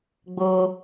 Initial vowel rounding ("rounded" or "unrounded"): rounded